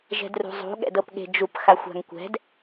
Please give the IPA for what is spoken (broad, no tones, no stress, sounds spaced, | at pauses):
ʒ ɛ̤ d r ṳ zˤ ṳ ɠ ɛ̰ d ɤ p ɠ e̤ d͡ʒ u p x a xʷ a̤ ŋ kʷ ɛ̤ d